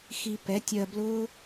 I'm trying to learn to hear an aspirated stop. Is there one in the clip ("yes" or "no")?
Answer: no